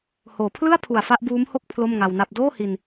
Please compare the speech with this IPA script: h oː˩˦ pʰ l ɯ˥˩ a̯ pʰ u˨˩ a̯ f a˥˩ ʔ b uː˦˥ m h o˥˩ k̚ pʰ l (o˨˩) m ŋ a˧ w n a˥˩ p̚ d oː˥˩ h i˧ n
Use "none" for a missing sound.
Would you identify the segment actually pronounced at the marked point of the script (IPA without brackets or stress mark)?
o˥˩